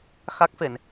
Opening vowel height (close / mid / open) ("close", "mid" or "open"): open